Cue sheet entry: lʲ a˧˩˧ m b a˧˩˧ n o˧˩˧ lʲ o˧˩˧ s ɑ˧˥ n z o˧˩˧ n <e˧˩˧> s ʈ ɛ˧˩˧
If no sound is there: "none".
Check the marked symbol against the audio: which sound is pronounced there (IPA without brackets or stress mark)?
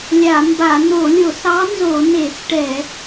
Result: e˧˩˧